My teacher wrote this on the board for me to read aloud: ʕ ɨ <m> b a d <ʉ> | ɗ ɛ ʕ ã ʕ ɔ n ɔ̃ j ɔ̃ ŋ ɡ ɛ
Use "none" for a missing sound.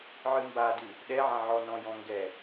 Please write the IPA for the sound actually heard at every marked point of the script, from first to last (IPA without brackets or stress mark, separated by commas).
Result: m, ʉ